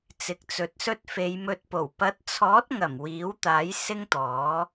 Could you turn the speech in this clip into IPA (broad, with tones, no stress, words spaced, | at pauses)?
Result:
t͡sɪ˨k̚t͡sɵ˨˥t̚sɵ˥t̚ fe˨˧jmɵ˧t̚po˨˩w pɐ˨˥t̚t͡sʰɔː˨˥t̚ŋɐ˨˩m wiː˨˥wt̪aː˨˥j sɪ˥ŋt̪ɔː˨˥